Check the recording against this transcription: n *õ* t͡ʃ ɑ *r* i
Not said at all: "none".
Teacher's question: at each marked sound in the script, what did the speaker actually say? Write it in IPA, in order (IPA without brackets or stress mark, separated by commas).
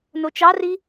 o, r